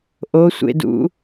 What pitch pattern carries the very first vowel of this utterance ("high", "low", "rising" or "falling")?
rising